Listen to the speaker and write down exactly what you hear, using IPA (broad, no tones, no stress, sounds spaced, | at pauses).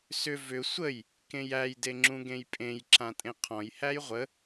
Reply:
s ʏ v ʏ sʷ ə j | k ẽ j æ j d e ŋ͡ǁ ũ ɡ ẽ j pʼ ẽ j ǁ ã tʼ ẽ qʰ ɔ̃ j h æ j ʁʷ ə